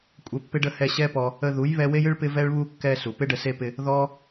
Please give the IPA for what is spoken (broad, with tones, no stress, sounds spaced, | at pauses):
kʷʼ ɛ˧ pː ɪ˦ ɖ ə˦ h ɛ˧ ɕ ɛ˦ p ɔ˧ | ə˧ ð u˨˦ j β ɛ˧ w e˦ j ɨ˦ ɭ p ɪ˦ v ɛ˦ ɭ β u˦ kː ɛ˧ s u˨ p ɪ˦ ɖ ə˧ s e˧ p ɪ˧ | ð ɔ˦